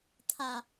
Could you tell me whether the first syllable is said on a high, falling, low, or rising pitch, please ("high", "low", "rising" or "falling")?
low